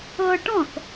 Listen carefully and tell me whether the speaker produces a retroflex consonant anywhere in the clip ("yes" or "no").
yes